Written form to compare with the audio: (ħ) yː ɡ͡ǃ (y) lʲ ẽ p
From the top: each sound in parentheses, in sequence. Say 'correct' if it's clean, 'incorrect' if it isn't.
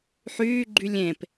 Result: correct, correct

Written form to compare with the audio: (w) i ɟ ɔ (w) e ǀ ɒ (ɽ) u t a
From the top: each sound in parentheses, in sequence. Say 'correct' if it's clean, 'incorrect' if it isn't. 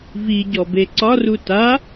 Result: incorrect: v, incorrect: b, incorrect: r

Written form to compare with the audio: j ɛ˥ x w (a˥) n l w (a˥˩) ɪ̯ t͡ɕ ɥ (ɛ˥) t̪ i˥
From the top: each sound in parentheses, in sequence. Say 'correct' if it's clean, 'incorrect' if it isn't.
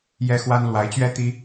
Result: correct, incorrect: a˧˥, correct

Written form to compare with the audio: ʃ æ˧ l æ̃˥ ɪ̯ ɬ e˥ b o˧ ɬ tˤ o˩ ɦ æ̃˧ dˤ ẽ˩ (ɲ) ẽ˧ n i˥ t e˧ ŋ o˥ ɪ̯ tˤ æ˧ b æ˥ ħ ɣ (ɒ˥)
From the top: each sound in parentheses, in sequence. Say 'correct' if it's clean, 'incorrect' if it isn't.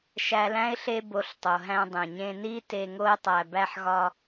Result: correct, correct

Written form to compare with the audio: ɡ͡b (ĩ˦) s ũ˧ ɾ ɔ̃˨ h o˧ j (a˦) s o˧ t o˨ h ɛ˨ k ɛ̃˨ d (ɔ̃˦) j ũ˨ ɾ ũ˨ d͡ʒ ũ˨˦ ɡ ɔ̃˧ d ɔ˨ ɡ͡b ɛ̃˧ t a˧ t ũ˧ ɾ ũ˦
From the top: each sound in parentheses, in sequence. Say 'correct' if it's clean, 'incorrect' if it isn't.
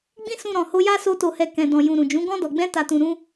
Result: correct, correct, incorrect: ɔ̃˨

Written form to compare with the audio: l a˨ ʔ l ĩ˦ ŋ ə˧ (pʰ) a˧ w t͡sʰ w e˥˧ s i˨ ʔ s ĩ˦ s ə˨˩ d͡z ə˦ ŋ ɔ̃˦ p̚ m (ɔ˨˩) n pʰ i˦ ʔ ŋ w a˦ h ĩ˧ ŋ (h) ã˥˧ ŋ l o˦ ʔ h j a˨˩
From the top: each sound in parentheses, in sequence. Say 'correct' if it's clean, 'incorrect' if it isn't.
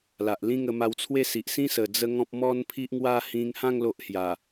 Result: incorrect: m, incorrect: ɔ˦, correct

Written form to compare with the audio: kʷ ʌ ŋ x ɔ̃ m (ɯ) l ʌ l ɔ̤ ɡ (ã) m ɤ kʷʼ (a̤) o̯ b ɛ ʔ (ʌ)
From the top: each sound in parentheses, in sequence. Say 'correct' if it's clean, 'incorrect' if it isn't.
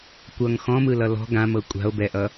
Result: correct, correct, correct, correct

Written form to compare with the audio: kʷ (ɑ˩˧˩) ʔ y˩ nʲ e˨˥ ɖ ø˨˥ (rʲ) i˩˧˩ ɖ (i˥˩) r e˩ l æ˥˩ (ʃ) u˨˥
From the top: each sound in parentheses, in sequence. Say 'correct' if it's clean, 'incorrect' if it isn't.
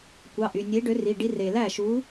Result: correct, incorrect: r, incorrect: i˦, correct

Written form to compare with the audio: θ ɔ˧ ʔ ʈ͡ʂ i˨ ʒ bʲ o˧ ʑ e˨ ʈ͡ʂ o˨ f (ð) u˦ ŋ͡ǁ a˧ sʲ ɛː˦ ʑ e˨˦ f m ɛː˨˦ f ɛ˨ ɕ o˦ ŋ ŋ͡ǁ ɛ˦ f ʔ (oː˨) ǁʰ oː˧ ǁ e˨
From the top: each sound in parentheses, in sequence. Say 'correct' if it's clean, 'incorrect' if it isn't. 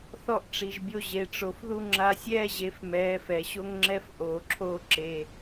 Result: correct, correct

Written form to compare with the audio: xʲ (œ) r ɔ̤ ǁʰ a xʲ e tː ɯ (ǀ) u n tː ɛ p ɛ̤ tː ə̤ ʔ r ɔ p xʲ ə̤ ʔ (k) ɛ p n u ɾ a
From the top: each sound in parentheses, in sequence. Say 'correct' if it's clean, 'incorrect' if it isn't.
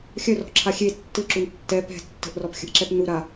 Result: correct, incorrect: ǁ, incorrect: ǁ

